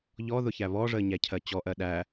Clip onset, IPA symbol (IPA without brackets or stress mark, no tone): ʎ